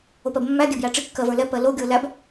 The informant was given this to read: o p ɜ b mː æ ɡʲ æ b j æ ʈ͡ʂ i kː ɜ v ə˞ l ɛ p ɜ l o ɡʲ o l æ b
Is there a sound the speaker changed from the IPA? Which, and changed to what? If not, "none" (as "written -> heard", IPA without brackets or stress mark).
none